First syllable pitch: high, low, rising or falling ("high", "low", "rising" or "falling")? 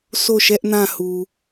falling